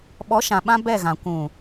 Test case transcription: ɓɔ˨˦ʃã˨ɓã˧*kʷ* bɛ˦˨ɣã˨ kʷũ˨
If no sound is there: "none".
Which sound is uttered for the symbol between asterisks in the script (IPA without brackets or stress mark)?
none